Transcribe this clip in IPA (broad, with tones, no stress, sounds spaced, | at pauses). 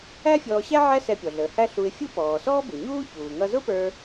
æ˥ fʲ ɔː˧ ɕ æ˥ ʕ æ˥ s ɛ˧ pʲ ɔ˩ ɮ əː˩ h æ˥ ɬ u˧ ɪ̯ fʲ u˥ p ɔː˩ s ɔː˥ b u˩ ɲ uː˥ ç uː˩ ŋ ʌ˧ z ʊ˥ p ə˞˧